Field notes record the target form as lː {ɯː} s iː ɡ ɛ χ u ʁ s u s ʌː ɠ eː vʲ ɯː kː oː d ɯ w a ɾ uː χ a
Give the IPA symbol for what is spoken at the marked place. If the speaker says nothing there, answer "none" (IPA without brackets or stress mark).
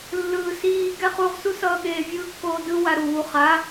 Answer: ɯː